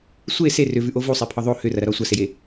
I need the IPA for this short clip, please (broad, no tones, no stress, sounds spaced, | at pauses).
sʷ e s e r ʏ v ʉ ʔ o v u sˤ e pʰ ɒ ðˤ o h ʏ r ɐ ɾ ɐ ɾ ɒ sʷ ɐ s e j e